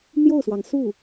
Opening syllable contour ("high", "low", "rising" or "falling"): falling